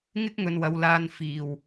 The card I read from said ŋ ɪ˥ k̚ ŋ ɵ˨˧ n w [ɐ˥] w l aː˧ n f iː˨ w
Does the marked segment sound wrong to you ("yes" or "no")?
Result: yes